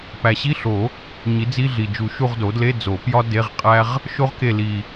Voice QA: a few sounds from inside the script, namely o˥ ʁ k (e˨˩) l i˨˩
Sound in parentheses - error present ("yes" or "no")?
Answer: yes